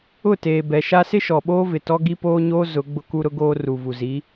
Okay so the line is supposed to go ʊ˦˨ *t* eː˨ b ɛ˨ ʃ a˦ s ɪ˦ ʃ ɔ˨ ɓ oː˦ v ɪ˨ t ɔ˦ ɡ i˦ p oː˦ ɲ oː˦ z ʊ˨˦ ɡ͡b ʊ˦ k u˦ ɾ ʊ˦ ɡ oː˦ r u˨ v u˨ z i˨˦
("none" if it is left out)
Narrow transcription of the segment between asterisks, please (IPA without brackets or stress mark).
t